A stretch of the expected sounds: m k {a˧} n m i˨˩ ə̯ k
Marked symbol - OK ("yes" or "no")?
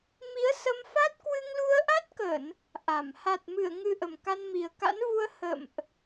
yes